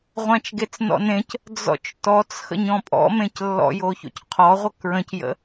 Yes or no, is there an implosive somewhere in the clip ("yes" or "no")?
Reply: no